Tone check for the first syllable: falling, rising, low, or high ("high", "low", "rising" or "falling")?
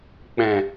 low